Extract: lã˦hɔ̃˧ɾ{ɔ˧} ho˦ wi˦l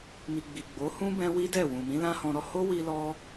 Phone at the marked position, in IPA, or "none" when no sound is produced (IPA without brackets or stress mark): ɔ˧